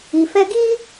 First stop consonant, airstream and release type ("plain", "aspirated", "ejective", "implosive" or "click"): plain